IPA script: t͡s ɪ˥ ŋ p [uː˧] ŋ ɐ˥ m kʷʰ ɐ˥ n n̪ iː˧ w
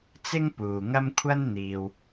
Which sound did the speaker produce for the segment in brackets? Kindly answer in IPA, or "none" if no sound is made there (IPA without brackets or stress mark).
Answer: uː˨